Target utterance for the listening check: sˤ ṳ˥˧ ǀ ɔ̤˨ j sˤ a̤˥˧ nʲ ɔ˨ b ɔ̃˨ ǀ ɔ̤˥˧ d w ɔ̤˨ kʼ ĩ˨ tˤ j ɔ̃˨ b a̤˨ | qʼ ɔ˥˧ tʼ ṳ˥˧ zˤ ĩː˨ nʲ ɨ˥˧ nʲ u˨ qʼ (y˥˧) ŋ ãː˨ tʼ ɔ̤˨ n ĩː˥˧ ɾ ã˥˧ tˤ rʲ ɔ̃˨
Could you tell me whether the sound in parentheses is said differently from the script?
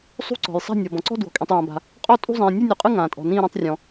yes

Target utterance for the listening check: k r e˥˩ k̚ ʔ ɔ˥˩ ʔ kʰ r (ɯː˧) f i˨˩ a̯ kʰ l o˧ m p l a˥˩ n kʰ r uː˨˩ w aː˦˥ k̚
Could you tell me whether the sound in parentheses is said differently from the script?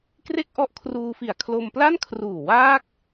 yes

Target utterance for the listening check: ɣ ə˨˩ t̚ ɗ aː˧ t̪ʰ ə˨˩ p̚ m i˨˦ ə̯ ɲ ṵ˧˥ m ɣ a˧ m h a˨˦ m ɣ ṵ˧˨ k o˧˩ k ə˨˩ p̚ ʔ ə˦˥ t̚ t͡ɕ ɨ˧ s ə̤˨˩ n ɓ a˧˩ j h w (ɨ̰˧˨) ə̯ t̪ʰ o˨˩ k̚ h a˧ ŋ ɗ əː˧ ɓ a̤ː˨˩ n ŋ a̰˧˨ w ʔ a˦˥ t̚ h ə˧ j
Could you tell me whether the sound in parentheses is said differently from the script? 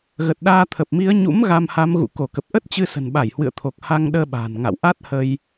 no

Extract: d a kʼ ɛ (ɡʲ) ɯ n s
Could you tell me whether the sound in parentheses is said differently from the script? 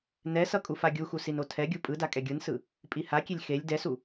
no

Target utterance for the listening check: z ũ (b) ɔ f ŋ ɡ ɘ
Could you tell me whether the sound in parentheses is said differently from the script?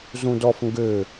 yes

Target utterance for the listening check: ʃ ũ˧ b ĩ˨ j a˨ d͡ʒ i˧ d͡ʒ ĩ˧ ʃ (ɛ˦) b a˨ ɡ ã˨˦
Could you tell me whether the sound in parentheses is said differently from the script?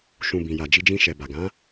yes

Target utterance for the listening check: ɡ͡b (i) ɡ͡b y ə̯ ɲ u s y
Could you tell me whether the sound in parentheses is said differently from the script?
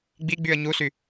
no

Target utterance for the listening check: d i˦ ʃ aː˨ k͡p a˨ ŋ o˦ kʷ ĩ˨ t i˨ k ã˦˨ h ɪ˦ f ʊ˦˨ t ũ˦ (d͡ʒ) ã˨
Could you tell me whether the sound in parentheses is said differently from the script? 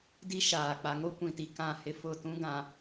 yes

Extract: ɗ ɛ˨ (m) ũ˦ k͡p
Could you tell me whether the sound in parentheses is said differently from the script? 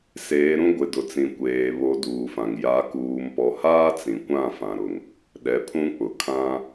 yes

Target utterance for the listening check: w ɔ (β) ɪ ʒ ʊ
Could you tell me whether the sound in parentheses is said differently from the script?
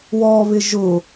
no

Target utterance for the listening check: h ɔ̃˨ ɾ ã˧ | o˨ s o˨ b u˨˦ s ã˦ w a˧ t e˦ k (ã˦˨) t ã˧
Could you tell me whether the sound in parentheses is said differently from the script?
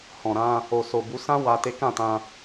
no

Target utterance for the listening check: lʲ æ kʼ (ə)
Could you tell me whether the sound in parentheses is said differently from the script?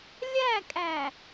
yes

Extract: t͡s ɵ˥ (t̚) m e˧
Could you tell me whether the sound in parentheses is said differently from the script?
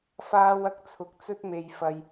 no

